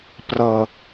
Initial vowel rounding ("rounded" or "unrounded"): unrounded